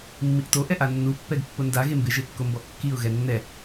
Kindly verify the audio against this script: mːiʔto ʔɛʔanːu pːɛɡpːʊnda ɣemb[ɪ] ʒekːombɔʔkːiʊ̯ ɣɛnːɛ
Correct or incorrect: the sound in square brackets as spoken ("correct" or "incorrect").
correct